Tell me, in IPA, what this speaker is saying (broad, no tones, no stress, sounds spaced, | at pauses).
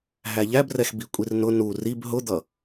ɦ æ ʎ æ b r ɛ x b i kʷʼ i r n ʊ n u r i b ɦ ʊ d̪ ʌ